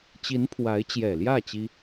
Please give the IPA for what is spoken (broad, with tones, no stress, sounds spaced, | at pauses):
t͡ɕ i˧˥ n pʰ w a˧˥ ɪ̯ t͡ɕ j ɛ˨˩ l j ä˥˩ t͡ɕ i˥